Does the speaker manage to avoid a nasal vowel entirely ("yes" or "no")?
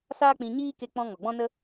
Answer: no